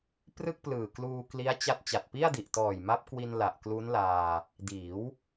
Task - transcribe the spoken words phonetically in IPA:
p r ɯ˥˩ k̚ p l ɯː˨˩ k l uː˧ k l i˦˥ a̯ t͡ɕ a˦˥ t̚ t͡ɕ a˨˩ t̚ p i˥˩ a̯ d i˨˩ ʔ t ɔː˨˩ j m a˦˥ p̚ k w i˧ n l a˨˩ ʔ k l u˦˥ n l aː˧ | d iː˩˦ w

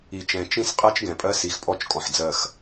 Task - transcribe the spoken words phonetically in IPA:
i˨ t͡ʃ ɛ̃˨ t͡ʃ ĩ˦ s qʼ ɜ˦ t͡ʃ ɡ ɛ̃˨ pʼ ɜ˦ s i˨ x pʼ ɔ˦˨ t͡ʃ kʼ ɔ̃˨ ħ d͡z ɜ˦˨ x

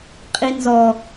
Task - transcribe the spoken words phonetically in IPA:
qʼ i n z ɔ

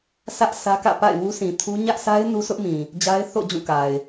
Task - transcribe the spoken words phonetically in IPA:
sʰ ä˦ ʔ sʰ ä˦ k ä̰˦˨ p a̰˦˨ ɪ̯ w u˦ s ĩ˨ tʰ u˦ ɲ ä˦ ʔ sʰ a˦ ɪ̯ n u˦ sʰ ʊ˦ ʔ m ĩ˨ | d͡ʑ a˦ ɪ̯ θ o̰˦˨ d͡ʑ ũ˦˨ k a˨ ɪ̯

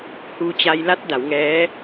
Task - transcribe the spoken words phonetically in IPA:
h uː˧ t͡ɕ a˧ j l a˦˥ t̚ d a˩˦ w ŋ ɛː˦˥

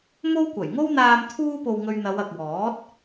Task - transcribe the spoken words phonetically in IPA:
m o˥ w kʷ ɐ˨˩ j ŋ o˥ w n̪ aː˧ m t̪ʰ uː˥ p o˧ w ŋ ɵ˧ ɥ n̪ ɐ˨˧ w ɐ˨ k̚ w ɔː˨˥ t̚

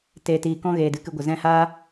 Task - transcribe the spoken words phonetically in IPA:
t eː˨ t iː˨ k ɔ̃˧ ɣ eː˨ d ɨ˨ k ɨ˧ ɡʷ ə˨ z ɛ̃˧ h aː˦

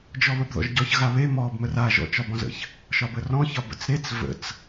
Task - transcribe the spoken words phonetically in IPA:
d͡ʒ ɔ β ə b ð ɔ̰ ʒ ɟ ɔ ç ɣ a β e m ɔ b m ə r a ʒ ɔ̰ t͡ʃ ɒ b ɔ̃ z ə̰ ç | ʃ ɒ b ə r ɔ̃ ç ɒ b ə̰ t͡s ɾ e t͡s v ə̰ t͡s

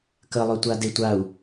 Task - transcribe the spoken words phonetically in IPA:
k ə lˠ œ tʷ a d e tʷ a u̯

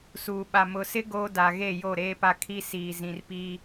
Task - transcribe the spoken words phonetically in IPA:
s uː˨ ɓ a˨ m ʊ˨ s ɪ˦ ɡ oː˦ d a˨ ɣ e˦˨ j o˦˨ ɾ eː˦ p a˦ kʰ i˦ s iː˨ z ĩ˨ r p i˦

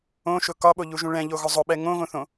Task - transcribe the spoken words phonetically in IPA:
õ ʃ ʊ k ɒ ɓ o ʎ u ʒ ũ ɭ ɛ̃ ʎ o ɣ ʊ zˤ ʊ ɓ ɛ ŋ õ ɣ õ θ õ

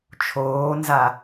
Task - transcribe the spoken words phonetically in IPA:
t͡ʃʰ oː n z a

